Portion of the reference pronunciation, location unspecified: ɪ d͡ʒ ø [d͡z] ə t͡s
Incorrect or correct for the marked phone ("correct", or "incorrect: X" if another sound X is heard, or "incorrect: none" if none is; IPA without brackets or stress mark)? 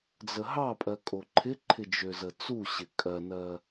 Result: incorrect: z